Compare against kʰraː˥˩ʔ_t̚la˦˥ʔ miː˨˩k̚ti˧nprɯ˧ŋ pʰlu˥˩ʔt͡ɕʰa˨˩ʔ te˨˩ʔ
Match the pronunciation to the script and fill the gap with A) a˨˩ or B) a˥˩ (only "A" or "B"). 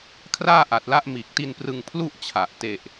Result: A